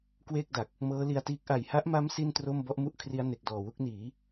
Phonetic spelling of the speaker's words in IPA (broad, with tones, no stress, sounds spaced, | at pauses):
k w eː˥˩ k̚ d a˨˩ k̚ | m ɤː˦˥ l i˧ a̯ t iː˦˥ k̚ ʔ a˨˩ j h a˦˥ ʔ m a˦˥ m s i˥˩ n t r o˥˩ m b ɔ˦˥ ʔ m u˥˩ ʔ kʰ r i˦˥ a̯ n e˨˩ k̚ d ɔː˨˩ w u˥˩ k̚ n iː˩˦